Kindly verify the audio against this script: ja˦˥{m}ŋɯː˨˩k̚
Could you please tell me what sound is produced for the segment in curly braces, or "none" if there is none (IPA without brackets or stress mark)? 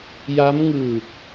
m